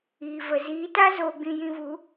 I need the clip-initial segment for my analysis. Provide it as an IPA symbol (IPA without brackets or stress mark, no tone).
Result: iː